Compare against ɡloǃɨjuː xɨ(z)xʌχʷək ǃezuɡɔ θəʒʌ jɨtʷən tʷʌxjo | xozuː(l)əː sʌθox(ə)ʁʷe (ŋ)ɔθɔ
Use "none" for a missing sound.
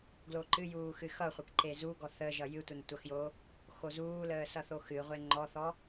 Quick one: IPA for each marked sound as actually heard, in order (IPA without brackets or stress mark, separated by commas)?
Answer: none, l, ɨ, ŋ͡ǃ